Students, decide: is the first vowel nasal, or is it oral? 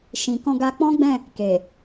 nasal